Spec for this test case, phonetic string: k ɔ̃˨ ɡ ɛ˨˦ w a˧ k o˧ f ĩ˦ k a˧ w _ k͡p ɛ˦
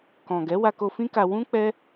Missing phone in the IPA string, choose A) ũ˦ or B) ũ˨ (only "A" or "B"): A